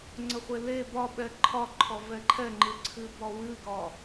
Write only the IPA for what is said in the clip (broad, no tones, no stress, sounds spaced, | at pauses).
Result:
ŋ͡ǀ ə χʷ e l e b ɒ ɓ ɛ ǃʰ ɒ ǃʰ ɔ v ɛ ǃʰ ɛ ŋ͡ǃ ɨ ǀʰ ɨ b ɒ w ɨ ɡ ɒ